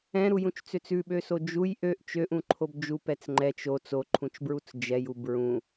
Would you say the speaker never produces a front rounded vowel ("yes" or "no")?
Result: no